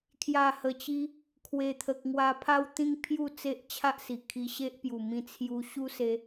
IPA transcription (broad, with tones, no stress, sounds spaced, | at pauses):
kʰ j a˨˩ h ə˨˩ t͡ɕ i˧ | kʰ w e˨˩ t̪ʰ ə˨ k̚ ŋ w a˧ pʰ a˦ w t̪ ĩ˦ ŋ pʰ j u˥˧ t͡s e˦ ʔ t͡ɕʰ a˦ ʔ s i˨˩ kʰ i˧ ɕ e˦ ʔ p j u˨˩ m ĩ˧ t͡sʰ j u˧ ɕ u˦ s e˦